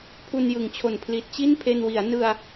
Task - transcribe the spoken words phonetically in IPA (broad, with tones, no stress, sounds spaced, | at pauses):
pʰ u˧ n j ɯ˩˦ ŋ t͡ɕʰ o˨˩ n pʰ l i˨˩ t̚ t͡ɕ i˥˩ n pʰ e˧ n w i˩˦ a̯ n ɯ˧ a̯